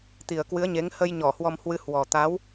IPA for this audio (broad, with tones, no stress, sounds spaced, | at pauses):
t̪ i˨˩ ə̯ k w ɨ˨˦ ə̯ ɲ e˨˦ ŋ h ə˧ j ɲ ɔ˧˩ h w ɔ˧ m h w ɨ˧ h w ɔ˨˩ t̪ a˨˦ w